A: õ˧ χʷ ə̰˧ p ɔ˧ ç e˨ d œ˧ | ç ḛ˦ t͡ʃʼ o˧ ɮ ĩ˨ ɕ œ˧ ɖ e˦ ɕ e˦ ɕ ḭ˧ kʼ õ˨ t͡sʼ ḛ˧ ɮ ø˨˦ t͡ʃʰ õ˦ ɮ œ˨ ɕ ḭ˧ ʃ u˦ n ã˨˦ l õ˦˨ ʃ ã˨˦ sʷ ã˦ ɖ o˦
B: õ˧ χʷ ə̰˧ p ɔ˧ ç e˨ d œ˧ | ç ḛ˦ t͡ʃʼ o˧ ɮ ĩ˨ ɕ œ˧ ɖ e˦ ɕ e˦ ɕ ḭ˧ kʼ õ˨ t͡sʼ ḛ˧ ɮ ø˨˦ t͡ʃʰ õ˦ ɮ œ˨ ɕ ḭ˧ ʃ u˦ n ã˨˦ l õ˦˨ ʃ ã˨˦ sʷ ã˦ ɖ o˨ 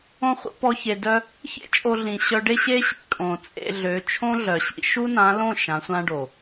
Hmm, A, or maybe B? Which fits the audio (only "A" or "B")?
B